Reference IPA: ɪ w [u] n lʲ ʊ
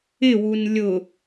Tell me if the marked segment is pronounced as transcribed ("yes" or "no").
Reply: yes